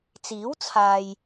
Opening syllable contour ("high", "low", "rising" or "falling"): rising